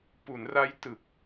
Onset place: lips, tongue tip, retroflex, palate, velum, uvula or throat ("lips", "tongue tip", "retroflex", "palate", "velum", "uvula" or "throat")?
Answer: lips